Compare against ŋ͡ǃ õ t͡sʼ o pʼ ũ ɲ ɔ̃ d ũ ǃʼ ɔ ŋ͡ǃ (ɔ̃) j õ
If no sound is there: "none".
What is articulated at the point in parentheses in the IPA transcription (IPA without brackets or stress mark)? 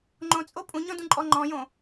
ɔ̃